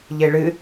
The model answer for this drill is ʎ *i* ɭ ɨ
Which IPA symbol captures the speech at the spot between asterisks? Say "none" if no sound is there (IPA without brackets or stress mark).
e